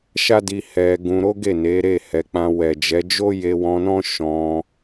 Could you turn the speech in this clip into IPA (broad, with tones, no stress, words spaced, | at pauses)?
ʃa˦di˧ hɛ˧ ɡũ˧ɾo˦ ɡe˦˨ne˨˦ɾe˦˨ hɛ˨˦k͡pã˧ wɛ˨d͡ʒɛ˨˦d͡ʒo˦ je˧wɔ̃˧nɔ̃˦ ʃɔ̃˧